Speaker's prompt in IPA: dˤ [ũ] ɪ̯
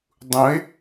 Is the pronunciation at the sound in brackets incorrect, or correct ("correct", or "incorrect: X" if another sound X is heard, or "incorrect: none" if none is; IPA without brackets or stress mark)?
correct